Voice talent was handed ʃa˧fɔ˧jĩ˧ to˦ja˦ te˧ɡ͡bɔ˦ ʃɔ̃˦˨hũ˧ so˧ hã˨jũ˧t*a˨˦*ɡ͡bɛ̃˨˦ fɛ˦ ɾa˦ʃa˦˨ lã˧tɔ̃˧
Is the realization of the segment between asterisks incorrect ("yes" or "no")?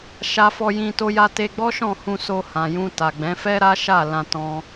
yes